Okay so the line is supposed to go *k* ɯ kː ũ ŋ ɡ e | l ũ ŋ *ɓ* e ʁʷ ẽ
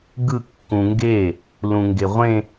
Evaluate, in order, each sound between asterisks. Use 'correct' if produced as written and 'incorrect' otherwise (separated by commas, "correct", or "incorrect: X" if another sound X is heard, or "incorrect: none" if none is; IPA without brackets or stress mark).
incorrect: ɡ, incorrect: ɡ